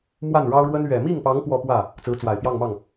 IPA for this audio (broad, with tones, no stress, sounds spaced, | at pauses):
m w a˥˩ n ɻ ɑ˥ ʊ̯ ɻ w ə˥ n ɥ ɛ˨˩ m i˥˩ ŋ p ɑ˧˥ ŋ p w ɔ˥˧ p w ä˥˩ | t͡s ɹ̩˧˥ t͡s w a˨˩ ɪ̯ p j ɑ˥˧ ŋ m ɑ˥˩ ŋ